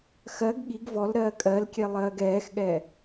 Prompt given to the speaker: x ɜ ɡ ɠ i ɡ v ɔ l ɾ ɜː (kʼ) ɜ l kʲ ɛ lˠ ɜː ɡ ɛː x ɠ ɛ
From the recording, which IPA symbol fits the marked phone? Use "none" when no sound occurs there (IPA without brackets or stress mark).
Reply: kʼ